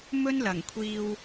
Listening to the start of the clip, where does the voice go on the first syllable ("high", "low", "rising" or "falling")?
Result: high